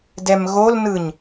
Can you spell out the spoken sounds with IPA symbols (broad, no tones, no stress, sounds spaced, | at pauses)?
d ɛ m ɣ o l n ɯ ɲ